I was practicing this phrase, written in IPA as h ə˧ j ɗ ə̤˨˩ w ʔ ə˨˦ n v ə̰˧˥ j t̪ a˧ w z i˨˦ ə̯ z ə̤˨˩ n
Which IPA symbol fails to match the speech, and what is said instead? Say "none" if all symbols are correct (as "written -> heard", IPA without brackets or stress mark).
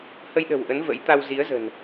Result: none